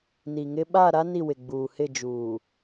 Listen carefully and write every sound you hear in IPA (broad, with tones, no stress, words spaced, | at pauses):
ni˨ŋɪ˦ ɓaː˦˨ɾa˦ ni˦˨wɪ˨ɡ͡buː˨ hɪ˦˨d͡ʒuː˨